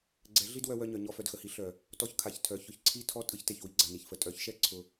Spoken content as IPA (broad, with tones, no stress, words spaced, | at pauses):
ɡ͡ǀɛ˨˦ ɮi˦d wœ˧wœ˧ɲœ˨ ɲɔ˧fœ˨dxə˨hi˧ ɬœ˨ | tɔ˧çkʰa˨ç tʰœ˨ çʊ˧ç ǀʰi˦tʰɔ˦ tʼɯ˧çte˨çwi˧ ɡ͡ǀa˨ni˨çfə˨ tʼœ˨˦çʃɛ˦ ǀʰʊ˧